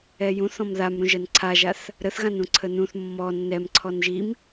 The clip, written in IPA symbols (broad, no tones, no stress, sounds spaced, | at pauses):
ɛ j ũ θ ɔ̃ m ð a m ɾ ũ ʒ ɜ n ǀʰ a ʒ a θ | ɾ ə θ ɣ ã n ũ ǀʰ ə n ũ θ mː ɔ nː ɛ m ǀʰ ɔ n ʒ i m